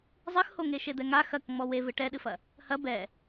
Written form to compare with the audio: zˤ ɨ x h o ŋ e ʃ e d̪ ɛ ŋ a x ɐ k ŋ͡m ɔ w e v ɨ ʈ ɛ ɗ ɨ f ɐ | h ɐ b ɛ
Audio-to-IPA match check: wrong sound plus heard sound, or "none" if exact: none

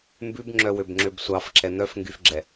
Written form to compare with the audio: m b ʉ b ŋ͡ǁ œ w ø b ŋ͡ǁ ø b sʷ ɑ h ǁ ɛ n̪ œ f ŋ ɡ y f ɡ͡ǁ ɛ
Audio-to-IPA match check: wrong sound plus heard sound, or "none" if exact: h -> f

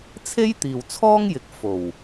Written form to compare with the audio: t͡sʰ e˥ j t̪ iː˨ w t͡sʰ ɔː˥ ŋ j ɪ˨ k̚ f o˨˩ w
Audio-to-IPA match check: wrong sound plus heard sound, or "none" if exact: none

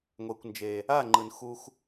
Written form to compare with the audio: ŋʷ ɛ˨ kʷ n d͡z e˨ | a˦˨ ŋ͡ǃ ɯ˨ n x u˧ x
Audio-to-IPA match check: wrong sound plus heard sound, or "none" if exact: d͡z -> d͡ʒ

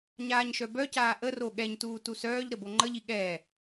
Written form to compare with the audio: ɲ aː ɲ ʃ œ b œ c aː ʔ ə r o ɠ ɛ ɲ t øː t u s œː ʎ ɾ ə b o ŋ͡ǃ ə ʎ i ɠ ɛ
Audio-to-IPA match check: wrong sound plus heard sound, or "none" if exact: øː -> uː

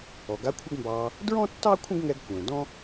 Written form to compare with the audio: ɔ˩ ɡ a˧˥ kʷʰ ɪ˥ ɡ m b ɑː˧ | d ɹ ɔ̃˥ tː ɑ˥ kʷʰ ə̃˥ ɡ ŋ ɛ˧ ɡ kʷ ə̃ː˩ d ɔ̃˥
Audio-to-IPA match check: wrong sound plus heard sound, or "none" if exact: none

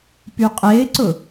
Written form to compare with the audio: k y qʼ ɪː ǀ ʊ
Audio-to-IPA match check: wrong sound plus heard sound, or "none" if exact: k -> p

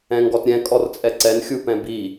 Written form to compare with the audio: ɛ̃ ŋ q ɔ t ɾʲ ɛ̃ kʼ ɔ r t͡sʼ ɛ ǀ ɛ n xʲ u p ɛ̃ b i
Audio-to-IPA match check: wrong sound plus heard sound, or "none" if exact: q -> ɡ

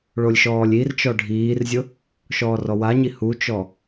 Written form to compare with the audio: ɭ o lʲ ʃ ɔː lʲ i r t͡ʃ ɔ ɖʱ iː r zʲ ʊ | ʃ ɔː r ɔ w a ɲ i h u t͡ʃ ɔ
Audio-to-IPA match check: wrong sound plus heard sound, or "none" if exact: none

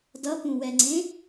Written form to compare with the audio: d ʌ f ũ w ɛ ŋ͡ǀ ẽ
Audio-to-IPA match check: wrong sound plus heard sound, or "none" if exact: f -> p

